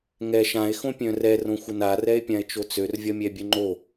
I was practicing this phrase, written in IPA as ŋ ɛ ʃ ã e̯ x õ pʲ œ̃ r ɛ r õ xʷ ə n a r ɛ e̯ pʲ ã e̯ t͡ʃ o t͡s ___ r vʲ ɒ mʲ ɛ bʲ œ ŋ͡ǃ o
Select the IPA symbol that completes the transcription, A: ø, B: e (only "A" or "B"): A